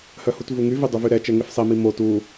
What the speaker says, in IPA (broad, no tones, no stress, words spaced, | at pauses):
hœhutvuŋy vidˤuvyɾɛ t͡ʃɛŋefsˤi mimo tu